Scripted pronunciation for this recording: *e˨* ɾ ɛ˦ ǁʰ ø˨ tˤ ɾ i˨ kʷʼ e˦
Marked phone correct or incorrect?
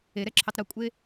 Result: correct